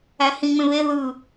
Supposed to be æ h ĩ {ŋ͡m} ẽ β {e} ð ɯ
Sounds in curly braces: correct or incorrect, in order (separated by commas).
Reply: correct, correct